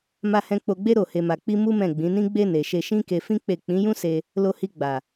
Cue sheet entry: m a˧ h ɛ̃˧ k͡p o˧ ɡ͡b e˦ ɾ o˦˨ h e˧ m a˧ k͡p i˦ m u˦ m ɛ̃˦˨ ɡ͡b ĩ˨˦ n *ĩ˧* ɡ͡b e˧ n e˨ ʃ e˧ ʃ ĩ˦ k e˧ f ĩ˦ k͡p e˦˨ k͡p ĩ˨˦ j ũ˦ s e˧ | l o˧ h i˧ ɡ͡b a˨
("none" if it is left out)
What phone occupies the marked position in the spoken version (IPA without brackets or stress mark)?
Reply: ĩ˦